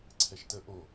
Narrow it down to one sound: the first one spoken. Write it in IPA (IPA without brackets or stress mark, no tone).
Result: ǀʰ